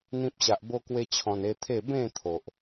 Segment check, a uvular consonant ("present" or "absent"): absent